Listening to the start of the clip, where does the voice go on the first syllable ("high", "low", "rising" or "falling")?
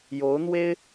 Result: rising